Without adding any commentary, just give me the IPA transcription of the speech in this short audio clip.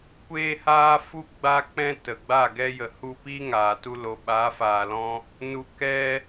kʷ eː˦ h aː˦ f u˦ ɡ͡b a˦ k͡p ɛ̃˦ t ə˨ ɡ͡b aː˦˨ ɡ ɛ˦ j ə˨ h u˧ p iː˦ ŋ aː˨ t u˦ l o˨ ɓ a˨˦ f aː˨ l ɔ̃˧ | n u˧ k ɛ˦

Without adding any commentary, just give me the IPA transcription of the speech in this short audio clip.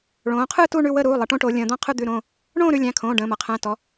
ɭ õː˩˧ qʰ ɯ˥˨ t u˥˨ ɳ ʉ˥˨ w ə˥˨ ɾ uː˩˧˩ lˠ ʌ˩˧ ʈ õ˥˨ ʈ o˩˧ lʲ ə̃ː˩˧ d̪ ɔ̃˥˨ qʰ ɯ˥˨ d̪ ʉ˩˧˩ ɾ õː˥˨ | ɳ õː˥˨ ɾ ʉ˩˧˩ lʲ æ̃˩˧˩ kʰ õː˩˧˩ ɖ ə̃ː˩˧˩ m ʌ˩˧ qʰ æ̃˩˧˩ t ɔ˩˧

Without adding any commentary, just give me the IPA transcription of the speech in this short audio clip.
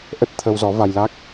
ʔ ə˦˥ t̚ t̪ʰ ə˧ w z ɔ˨˦ v a˧ j l a˦˥ k̚

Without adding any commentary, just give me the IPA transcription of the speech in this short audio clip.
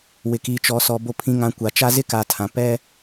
w ɪ˨ k iː˨ t͡ʃ ɔ˨ s ɔ˨ b o˨ pʰ ĩ˨ ŋ ã˨ kʷ a˨ t͡ʃ a˦ z ɪ˦ k a˨ tʰ ã˨ p ɛ˦

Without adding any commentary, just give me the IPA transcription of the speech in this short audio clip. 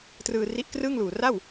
t r ɯː˧ r i˦˥ ʔ k r ɯː˥˩ ŋ l uː˨˩ r a˥˩ w

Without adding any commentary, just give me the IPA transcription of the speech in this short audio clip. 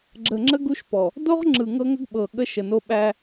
ɡ͡ǁ ə˨ ŋ͡ǁ ə˦ ɡ u˦ ʃ p ɔ˨ | d o˦ ʁ ŋ͡ǁ ɯ˨ ŋ ɤ˦ ŋ ə˦ ɡ ɓ ɤ˨ ɠ ə˦ ʃ ə˨ n o˦ ɓ æ˦

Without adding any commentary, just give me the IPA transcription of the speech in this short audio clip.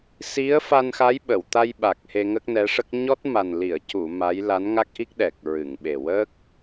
s i˧˥ ə̯ f a˧ n x a˧˥ j ɓ ə˨˩˨ w t̪ a˧ j ɓ a˨˩ k̚ h e˧ ŋ ə˦˥ k̚ n ɛ˧˥ ʂ ə˦˥ k̚ ɲ ɔ˦˥ t̚ m a˨˩ n l i˨˩˨ ə̯ c u˨˩˨ m a˧˥ j l a˧˥ n ŋ a˦˥ k̚ ʔ i˦˥ k̚ ɗ ɛ˨˩ k̚ ɹ ɨ˨˩˨ ŋ ɓ e˨˩ w ə˦˥ k̚

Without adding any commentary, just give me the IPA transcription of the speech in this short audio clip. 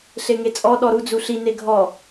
ɬ e ŋ e t͡sʼ ɔ ɗ ɔ ɾ u d͡z u ɬ i n e ɡʱ ɔ

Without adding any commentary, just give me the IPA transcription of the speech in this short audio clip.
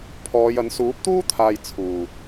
pʰ ɔː˨˧ j ɐ˨˥ n s uː˨˥ p̚ t̪ uː˥ t̪ʰ aː˨ j t͡sʰ uː˨˩

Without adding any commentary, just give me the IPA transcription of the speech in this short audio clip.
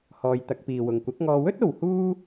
h ɔː˨ j t̪ ɐ˧ k̚ p iː˨ w ʊ˨ ŋ kʷ ɐ˨˥ k̚ ŋ ɔː˧ w ɵ˥ t̚ o˨ w h uː˥

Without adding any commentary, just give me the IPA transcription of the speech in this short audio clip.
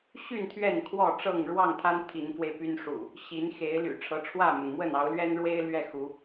ɕ y˥˨ n t̪ʰ ɥ ɛ˥˨ n kʰ w ɔ˥˨ ʈ͡ʂ ɤ˥˨ ŋ ɻ w ɑ˥˨ ŋ t̪ʰ a˦ n t̪ʰ i˨˦ n f w e˧ ɪ̯ p y˦ n ʂ ṵ˨˩ | ɕ i˨˦ n x e˨˦ ɪ̯ l y̰˨˩ ʈ͡ʂʰ ɤ˨˦ ʈ͡ʂʰ w ä˥˨ m ə˩ n m w ə˥˨ n ɑ˨˦ ʊ̯ l ɥ ɛ˦ n ɻ w e˦ ɪ̯ l ɥ ɛ˥˨ x u˨˦

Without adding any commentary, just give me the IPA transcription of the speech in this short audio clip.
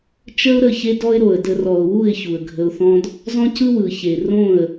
t͡ʃ ə˦ ʊ̯ ɾ ə˦˨ ç e˦ d ɔ˦ ɪ̯ ɾ o˨ ə̯ d ə˧ r ɔ˨ ʊ̯ w u˦˨ ɪ̯ ç u˨ ə̯ ɡʱ ə˧ ʊ̯ θ ɔ̃˦ d | z ɔ̃˦ c ɯ˦ w ɯ˨ ç e˨ r õ˦˨ ə̯

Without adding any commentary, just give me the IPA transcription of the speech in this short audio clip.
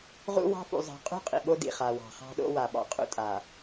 ʁ ṵ˦ w ɑ̤˦ f ṵ˨ zˤ ɑ̤˨ qʼ ṳ˦ qʼ ḭ˨ ɓ o˦ d ḭ˦˨ χ a˨ w ɑ̤˨ χ ɑ̤˦ ɗ o̰˦ w a˨ ɓ ɑ̰˨ qʼ ṵ˦ tʼ a˨

